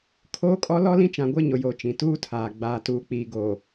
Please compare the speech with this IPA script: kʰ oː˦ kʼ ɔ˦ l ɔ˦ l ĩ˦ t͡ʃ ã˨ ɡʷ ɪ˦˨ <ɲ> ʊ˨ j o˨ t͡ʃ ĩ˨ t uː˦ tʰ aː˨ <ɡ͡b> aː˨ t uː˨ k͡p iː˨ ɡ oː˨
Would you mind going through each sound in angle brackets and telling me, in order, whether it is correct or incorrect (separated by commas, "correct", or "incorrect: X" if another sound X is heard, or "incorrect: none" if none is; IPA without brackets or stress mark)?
correct, correct